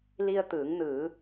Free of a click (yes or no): yes